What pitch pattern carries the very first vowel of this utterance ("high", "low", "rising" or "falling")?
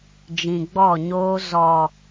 low